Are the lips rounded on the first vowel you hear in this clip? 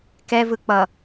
no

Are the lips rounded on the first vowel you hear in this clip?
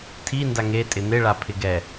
no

